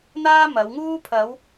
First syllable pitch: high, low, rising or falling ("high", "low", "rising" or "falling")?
high